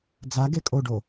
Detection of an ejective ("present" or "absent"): present